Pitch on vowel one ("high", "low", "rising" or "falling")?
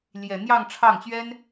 low